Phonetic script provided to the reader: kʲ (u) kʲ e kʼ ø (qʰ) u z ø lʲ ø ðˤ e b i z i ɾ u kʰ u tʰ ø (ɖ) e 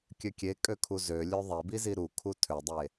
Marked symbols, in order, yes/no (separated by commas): no, no, no